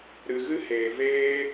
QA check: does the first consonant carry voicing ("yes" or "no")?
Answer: yes